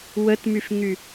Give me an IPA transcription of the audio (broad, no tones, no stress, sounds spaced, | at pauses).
w ə t m y f ŋ y